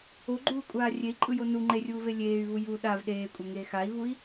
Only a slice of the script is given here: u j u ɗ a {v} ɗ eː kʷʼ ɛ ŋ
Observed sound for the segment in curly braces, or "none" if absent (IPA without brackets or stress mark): v